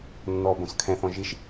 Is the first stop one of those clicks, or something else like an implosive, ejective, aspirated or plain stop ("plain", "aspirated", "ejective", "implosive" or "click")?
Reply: plain